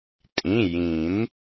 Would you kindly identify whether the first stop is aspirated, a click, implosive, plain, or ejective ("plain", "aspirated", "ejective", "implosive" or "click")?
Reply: ejective